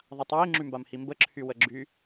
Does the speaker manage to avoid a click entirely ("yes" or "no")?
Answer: no